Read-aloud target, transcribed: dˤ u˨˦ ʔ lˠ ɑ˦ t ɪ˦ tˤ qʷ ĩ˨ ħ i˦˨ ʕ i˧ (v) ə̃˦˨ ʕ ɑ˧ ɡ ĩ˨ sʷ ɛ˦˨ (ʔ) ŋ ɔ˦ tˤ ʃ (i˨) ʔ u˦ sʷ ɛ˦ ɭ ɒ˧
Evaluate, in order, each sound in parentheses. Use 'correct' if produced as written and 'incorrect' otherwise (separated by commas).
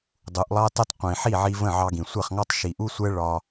correct, incorrect, correct